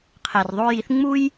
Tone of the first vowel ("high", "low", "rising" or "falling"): low